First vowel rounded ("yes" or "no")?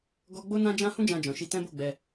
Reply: yes